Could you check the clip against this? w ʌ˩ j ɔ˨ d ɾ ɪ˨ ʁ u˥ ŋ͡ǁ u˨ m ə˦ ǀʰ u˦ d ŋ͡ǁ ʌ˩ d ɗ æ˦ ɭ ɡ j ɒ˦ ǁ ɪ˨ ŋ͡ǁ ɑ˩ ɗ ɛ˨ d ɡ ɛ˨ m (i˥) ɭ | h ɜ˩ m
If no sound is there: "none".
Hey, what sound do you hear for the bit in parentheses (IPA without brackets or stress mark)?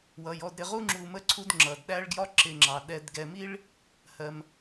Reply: i˥